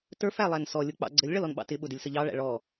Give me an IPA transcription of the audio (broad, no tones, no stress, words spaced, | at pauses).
tə˞f ælˠænsɔ lʲʊk͡pɑ̰ɡ͡ǀəlʲ ɭʌlɔnɓɑ̰tɪ ɓʊdɪlʲsəʎɑ ɭæ̰ɭɔ